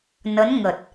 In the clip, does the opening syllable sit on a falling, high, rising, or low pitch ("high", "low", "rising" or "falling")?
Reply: rising